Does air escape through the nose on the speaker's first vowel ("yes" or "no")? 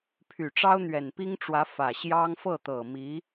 no